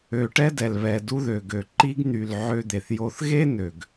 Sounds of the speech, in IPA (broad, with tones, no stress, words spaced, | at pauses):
ø˨ʈɛ˦ dɛ˨lβɛ˨ du˦ðø˨ɡø˨ ǃi˦ɡn̪y˨l ʕø˦d̪e˨θjo˦θ ɣe˦ nø˨ɡ